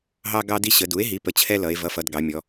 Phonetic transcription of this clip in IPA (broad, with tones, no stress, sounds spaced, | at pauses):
ɦ ɑ˦ ɡ ɑ˦ d i˦ ɕ ə˩˧ d u˩˥ e̯ ɦ i˩˥ p ə˩˥ t͡ɕʰ ɛ˦ l ʌ˩˧ e̯ v ʌ˩˥ f ʌ˩˧ d ɡ ɑ˩˧ mʲ ɔ˩˧